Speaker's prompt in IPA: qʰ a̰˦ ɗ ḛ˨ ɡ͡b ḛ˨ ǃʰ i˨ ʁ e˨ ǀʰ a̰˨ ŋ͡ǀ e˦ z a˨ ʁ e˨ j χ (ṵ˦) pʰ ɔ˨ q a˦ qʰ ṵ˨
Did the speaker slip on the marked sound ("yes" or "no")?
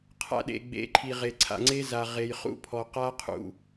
no